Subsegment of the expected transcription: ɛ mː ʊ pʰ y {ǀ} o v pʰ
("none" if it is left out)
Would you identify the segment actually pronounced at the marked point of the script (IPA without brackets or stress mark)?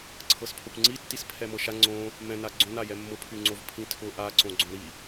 ŋ͡ǀ